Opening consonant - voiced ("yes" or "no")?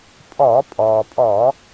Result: no